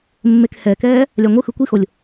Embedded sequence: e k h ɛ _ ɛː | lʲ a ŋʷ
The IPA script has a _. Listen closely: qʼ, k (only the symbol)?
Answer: k